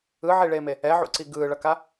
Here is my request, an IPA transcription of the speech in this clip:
ɯʕiɭeːme | ɛʕṵǀi ɡɯːɭʌka

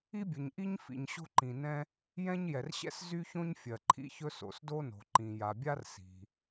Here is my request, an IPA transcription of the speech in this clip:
i˥bʲɵ˩ɲʔi˥ɲ fḭ˩ɲɕo̤˥ǃĩ˩nɛ̃˥ | jɛ̃˥ɲjɛ˩rɕɛ̰˥s zy˥çõ˥ɲ fʲɜ˩ǃʰḭ˥çɵ˥ so̰˩sdo˥no̤˩ ǃĩ˩ ja˩bʲa˥r si̤˩

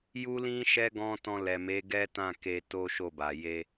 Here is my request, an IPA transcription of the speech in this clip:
ju˦ lĩ˦ʃɛ˦ ɡɔ̃˦ tɔ̃˧lɛ˨me˨˦ ɡɛ˦tã˦˨ ke˧ to˦ʃo˦˨ba˨ je˧

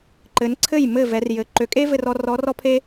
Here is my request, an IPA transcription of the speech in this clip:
ǃɘ˩˧nǀʰɘ˥˩j mɘ˥˩ vɛ˩˧rjɘ˩˥ ǃø˩˧kʼe˥vɘ˧rɔ˧ rɔ˧˥rɔ˥pʰe˥

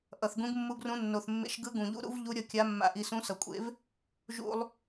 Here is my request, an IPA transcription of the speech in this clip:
ʔʌ˨˩θɡũ˧˥ɡmːu˧˥ɡrũ˧˥ nːo˨˩θmːḛ˧˥ʃ ɡɯ˧˥ɡũ˨˩ʎṵ˧˥ɾṵ˧˥v ʎu˧˥ɾʲʌ˧ kʲa˧˥mːa̰˧ʔi˧ sũ˧˥sʌ˨˩kʷʼḛ˧˥v | ʒṵ˧lˠ

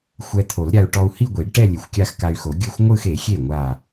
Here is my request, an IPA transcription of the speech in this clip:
xʷɛ˧t̪ʰo˨˩˦lɾʲa˧u̯ ʈɔ˧u̯hi˥˧ ɡʷi˨˩˦ɖʈɛ˥˧ lʲe˨˩˦xʷkʲa˥˧xka˧y̯xo˨˩˦ ɡʲɯ˥˩xʷŋʷɯ˥˧xe˨˩˦xʲe˥˩ ŋʷa˥˩

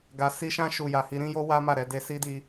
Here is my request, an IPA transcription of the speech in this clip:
ɡa˨si˧ʃã˧ ʃu˨ja˨ hi˧ɾĩ˦jo˦ wa˦ma˦˨ɾɛ˧ de˧si˦di˧

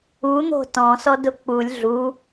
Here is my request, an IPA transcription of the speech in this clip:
un̪o̤ tɔ̃sɔdʊ k͡pulʲ ɮu

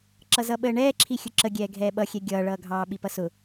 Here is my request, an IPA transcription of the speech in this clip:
ǁʌzʌɓəːɳɛː ǁʰixʲʊǁə ɡʲɛːɡʱɛːɓʌxʲɛ ɡʲʌːɭʌːɡʱɑː ɓipʌsʊ

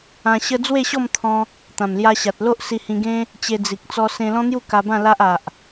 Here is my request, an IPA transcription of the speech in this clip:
ã˧ɕə˦ d͡zwe˥˧ɕɔ˥˧mt̪ʰɔ̃˧ | t̪ã˨˩mlja˧ɕa˨t̚lo˦ʔ si˧hĩ˧ɡẽ˦ | t͡ɕe˧d͡zi˨k̚ t͡sɔ˧sẽ˧ lɔ̃˦n̪ju˥˧ ka˧bã˥˧ la˦ʔa˨ʔ

